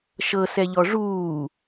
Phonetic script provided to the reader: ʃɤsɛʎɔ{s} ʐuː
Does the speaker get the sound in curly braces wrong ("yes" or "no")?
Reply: yes